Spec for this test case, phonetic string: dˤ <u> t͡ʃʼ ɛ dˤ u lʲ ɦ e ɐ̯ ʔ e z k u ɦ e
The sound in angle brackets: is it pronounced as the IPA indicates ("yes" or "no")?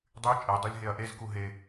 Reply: no